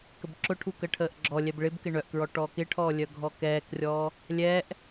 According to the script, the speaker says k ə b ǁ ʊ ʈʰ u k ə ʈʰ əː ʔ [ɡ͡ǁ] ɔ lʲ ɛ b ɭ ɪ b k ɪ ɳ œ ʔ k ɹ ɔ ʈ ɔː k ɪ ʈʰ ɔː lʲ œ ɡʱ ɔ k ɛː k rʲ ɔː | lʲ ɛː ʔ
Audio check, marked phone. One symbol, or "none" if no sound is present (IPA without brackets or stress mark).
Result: ɡ͡ǁ